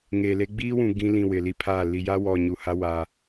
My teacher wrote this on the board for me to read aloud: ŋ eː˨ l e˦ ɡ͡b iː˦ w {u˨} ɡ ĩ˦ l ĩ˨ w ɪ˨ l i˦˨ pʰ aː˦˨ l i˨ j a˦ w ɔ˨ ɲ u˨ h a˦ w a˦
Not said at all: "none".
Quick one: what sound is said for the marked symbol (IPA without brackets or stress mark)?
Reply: ũ˨